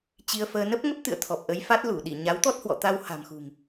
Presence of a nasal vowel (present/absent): absent